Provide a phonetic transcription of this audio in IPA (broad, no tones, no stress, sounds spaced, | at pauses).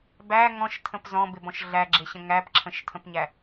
b æ ŋ ɔ̃ ʃ tʰ ə̃ p z ɔ̃ b ɪ b ɔ̃ ʃ ɮ æ ɡ͡ǁ ɪ ɕ ə̃ ŋ æ p ǁʰ ə̃ ʃ tʰ ə̃ p ɲ æ